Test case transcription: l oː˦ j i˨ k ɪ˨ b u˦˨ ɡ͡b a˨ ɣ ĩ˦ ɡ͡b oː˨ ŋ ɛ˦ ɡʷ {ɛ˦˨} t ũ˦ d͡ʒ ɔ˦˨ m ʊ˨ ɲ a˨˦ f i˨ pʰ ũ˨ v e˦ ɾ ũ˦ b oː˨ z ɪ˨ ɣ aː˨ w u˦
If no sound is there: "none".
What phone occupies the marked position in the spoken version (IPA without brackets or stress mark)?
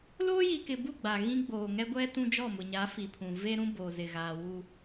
ɛ˦